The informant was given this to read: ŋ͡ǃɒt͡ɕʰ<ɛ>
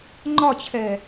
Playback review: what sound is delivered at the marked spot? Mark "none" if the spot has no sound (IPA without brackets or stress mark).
ɛː